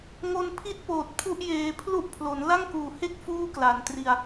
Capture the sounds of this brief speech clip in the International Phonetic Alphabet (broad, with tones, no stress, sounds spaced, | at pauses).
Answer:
ŋ o˧ n pʰ i˦˥ t̚ p oː˨˩ t̚ pʰ u˥˩ ʔ j eː˧ pʰ l u˦˥ ʔ pʰ l o˩˦ n l a˥˩ ŋ k uː˨˩ h e˥˩ k̚ f uː˥˩ k l a˨˩ n t r i˧ a̯